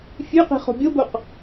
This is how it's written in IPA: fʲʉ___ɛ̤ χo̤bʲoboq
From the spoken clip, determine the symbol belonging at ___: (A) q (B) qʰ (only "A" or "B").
A